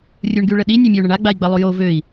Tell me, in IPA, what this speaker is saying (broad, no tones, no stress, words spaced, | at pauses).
rʲuɳɡyɭəɗi nʲɛmʲau̯ɳəɳa ɡ͡bai̯ɡ͡bə lˠujo vøi̯